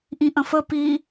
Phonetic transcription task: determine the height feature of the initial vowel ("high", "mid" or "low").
high